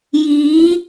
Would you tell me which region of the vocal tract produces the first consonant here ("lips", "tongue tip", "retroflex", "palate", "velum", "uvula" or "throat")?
palate